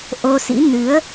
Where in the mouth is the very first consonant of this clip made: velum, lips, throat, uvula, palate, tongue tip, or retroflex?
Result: throat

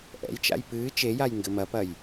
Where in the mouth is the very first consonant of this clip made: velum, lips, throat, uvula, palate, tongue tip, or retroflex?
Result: throat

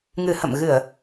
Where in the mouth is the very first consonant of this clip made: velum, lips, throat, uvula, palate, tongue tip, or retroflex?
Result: velum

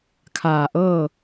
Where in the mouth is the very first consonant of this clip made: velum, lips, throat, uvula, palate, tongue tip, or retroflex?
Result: velum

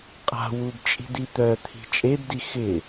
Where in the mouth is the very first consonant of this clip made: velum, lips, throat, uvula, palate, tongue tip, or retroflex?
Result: uvula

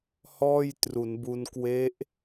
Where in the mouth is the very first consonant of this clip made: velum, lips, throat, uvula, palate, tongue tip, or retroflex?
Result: throat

